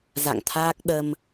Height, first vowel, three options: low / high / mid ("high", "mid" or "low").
low